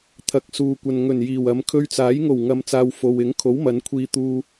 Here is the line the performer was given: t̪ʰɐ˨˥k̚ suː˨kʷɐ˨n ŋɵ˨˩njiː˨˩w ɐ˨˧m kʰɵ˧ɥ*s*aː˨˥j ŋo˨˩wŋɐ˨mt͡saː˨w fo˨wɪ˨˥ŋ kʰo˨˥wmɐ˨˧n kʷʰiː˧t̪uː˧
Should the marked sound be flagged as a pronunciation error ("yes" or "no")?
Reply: yes